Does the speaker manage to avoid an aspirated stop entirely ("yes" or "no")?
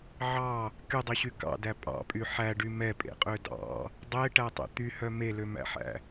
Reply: yes